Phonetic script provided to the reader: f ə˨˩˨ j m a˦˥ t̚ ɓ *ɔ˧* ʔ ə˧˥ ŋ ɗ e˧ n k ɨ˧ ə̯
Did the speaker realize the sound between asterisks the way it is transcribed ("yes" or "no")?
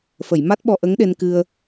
yes